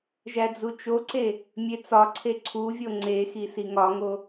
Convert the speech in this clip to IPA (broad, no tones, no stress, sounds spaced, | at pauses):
ʒ æ d͡z u t͡ʃ o ǀ e | mʲ e t͡s ɒ ǀʰ e ǀʰ u vʲ o ŋ͡ǀ e x i s i ŋ ɒ ŋ o